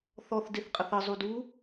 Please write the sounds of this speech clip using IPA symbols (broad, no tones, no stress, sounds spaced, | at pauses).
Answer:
θ ɔ θ d e θ qʼ ə θ ə zˤ u d u